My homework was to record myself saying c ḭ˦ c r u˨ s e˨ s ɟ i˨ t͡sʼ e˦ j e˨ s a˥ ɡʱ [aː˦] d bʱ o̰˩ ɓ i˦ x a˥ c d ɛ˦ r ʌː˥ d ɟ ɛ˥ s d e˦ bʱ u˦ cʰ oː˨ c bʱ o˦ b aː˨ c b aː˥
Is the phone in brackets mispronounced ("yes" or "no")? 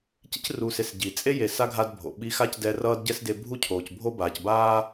yes